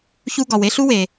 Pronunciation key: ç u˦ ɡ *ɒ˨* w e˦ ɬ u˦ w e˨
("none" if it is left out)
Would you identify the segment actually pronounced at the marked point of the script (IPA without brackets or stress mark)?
ɒ˨